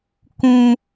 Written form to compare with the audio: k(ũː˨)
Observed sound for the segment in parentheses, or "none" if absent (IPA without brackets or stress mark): ũ˨